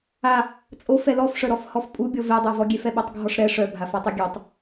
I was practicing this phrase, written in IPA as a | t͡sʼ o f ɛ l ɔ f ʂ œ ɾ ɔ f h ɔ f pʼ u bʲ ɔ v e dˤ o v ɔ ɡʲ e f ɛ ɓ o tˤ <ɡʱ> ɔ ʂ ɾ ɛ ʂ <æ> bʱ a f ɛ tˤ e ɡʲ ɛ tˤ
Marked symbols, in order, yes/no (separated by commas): yes, no